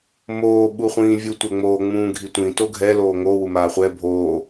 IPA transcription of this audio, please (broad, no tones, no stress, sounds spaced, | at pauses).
m oː ɓ u χʷ ĩː vʲ u tʷ ɛ ŋ͡m oː ŋ͡m ũː ɡʱ i tʷ ĩ t o ɡʱ ɛ l oː ŋ o w u m aː χʷ ɛ bʱ oː